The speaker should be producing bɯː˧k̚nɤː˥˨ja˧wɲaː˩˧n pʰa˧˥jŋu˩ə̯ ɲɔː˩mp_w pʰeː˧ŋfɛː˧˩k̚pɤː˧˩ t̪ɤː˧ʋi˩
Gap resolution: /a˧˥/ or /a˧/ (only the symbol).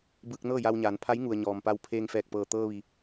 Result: a˧